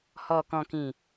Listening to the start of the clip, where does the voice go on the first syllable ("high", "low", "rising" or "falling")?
low